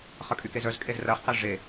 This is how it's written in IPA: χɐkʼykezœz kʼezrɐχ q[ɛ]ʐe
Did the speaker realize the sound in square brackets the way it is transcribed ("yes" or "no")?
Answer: yes